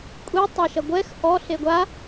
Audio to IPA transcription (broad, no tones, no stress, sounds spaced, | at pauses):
kʷʼ i tˤ ɐ ʃ ɐ ɡʷ ɛ x ʔ ɔ ɬ e ɡʷ a